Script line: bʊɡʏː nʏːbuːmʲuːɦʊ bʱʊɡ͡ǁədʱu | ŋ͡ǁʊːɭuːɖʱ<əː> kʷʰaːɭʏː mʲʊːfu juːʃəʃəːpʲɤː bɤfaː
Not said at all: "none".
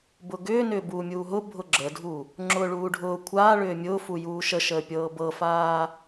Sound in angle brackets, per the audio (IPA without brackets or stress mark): ʊː